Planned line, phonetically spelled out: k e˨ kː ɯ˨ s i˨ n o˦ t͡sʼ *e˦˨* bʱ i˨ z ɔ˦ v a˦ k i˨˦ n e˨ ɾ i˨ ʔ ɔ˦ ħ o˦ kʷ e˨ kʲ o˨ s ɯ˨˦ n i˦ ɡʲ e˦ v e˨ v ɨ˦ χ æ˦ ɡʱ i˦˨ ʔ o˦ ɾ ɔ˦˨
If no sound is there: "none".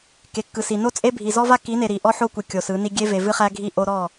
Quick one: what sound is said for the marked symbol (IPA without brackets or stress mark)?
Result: e˦